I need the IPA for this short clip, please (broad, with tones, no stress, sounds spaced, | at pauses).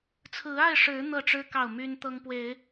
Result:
t͡sʰ ɹ̩˨˦ a˥˨ ɪ̯ ʂ ɻ̩˨˦ n̪ ɤ˥˨ ʈ͡ʂ ɻ̩˦ k ɑ˥˨ ʊ̯ m y˦ n t̪ ɤ˦ ŋ p w e˨˦ ɪ̯